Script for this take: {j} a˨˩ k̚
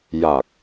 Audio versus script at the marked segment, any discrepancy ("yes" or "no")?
no